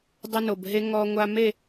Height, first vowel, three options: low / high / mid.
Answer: low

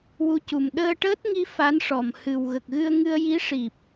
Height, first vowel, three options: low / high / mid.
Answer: high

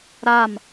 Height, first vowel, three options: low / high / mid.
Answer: low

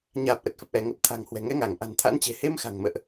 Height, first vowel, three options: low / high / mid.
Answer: low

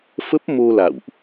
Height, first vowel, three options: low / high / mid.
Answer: mid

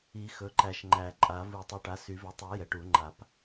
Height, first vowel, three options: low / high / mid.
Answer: high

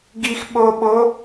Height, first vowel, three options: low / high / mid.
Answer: high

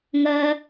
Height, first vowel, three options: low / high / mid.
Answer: low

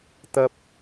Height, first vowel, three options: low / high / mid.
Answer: low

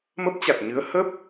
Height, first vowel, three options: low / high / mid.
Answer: mid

